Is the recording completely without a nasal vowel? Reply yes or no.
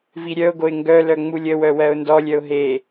yes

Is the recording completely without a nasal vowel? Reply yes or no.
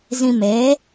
no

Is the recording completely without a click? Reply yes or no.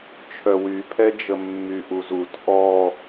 yes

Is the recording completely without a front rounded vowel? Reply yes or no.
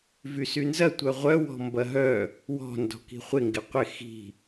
no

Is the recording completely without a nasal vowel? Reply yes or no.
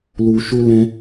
no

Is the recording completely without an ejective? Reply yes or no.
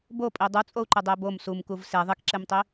no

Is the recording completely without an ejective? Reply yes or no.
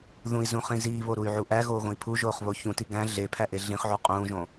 no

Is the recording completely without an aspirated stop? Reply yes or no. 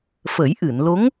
yes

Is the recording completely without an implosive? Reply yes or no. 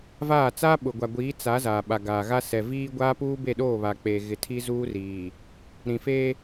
no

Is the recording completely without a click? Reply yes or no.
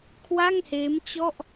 yes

